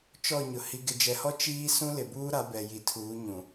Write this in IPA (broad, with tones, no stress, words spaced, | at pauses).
t͡ʃɔ˦˨ɲʊ˨ hi˨ɡɪ˨d͡ʒɛ˨hɔ˦ t͡ʃiː˦ sũ˦lɪ˨buː˦ɾa˨˦ bɛ˨ji˨tʰuː˨˦ ɲũ˨